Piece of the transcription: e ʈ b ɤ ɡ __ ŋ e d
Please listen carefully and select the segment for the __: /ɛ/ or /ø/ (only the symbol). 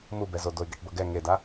ɛ